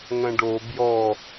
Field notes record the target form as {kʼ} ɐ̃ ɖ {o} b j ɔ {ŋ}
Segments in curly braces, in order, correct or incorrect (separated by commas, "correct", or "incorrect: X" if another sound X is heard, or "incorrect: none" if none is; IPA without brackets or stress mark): incorrect: ŋ, correct, incorrect: none